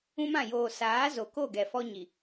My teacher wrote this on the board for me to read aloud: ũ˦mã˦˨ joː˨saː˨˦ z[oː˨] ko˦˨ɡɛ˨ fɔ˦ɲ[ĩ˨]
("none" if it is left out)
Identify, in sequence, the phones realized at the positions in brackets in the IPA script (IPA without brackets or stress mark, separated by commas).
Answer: o˨, i˨